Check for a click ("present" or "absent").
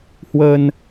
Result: absent